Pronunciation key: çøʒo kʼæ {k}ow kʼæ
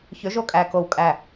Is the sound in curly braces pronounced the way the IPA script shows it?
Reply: yes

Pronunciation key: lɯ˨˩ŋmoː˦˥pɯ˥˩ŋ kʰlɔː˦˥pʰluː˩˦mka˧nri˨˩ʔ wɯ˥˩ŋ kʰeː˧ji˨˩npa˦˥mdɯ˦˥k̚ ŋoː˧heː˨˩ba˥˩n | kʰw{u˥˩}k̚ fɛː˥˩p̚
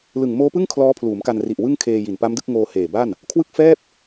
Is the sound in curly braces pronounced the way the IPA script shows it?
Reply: no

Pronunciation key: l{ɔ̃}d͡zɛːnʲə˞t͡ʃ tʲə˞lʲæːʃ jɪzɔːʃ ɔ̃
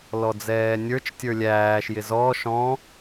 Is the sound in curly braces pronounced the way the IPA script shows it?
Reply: no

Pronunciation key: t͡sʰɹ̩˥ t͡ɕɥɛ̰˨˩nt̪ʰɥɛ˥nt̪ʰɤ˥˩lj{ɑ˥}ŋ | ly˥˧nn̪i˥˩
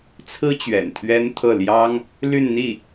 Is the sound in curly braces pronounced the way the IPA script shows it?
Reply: yes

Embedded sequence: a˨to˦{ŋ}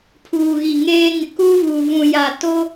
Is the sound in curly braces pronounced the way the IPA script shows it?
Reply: no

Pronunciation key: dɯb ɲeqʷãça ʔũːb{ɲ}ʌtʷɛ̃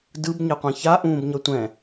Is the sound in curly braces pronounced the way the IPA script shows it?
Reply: yes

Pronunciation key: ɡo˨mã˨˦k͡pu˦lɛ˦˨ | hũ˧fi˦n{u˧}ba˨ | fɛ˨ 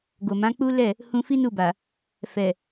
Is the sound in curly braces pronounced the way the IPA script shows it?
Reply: no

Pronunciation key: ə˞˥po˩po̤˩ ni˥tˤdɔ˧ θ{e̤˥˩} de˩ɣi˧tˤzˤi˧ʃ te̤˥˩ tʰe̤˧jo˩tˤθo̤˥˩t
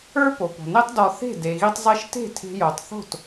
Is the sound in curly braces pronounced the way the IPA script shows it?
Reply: yes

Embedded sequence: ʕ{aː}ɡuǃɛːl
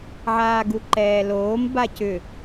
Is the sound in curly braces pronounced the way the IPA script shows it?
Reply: yes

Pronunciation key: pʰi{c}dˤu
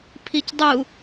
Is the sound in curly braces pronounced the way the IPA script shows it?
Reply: yes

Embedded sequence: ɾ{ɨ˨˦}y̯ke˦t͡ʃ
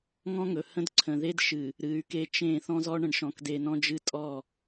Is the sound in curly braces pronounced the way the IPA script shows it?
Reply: yes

